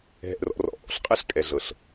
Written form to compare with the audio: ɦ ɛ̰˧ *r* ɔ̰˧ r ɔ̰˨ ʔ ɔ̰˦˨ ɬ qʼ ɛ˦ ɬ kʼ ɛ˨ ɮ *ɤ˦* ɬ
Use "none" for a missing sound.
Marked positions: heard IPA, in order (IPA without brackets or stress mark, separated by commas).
r, ɤ˨